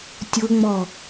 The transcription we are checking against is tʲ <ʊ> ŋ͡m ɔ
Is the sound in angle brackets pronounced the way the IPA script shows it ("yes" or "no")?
yes